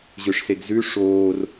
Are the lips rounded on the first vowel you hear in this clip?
yes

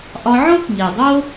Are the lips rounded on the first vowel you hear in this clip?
yes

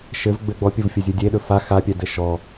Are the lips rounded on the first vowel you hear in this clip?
no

